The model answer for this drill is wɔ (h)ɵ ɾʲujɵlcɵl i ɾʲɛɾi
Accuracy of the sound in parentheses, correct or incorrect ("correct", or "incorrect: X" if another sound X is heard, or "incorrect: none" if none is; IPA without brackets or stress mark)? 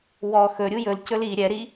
incorrect: x